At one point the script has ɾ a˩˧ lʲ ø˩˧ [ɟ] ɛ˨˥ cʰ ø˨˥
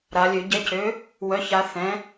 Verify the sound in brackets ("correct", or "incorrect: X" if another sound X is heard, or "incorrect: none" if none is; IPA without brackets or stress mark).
correct